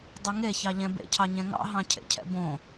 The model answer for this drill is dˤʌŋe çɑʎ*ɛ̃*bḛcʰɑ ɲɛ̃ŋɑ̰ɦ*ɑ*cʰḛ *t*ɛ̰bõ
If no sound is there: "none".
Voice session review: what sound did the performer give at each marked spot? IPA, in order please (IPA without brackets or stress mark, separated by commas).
ɛ̃, ɑ̃, cʰ